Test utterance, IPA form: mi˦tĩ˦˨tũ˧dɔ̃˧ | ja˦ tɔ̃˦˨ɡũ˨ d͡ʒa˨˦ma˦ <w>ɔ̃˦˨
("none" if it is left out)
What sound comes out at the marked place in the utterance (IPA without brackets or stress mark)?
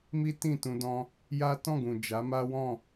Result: w